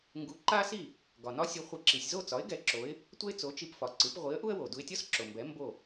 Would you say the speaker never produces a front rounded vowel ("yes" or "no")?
yes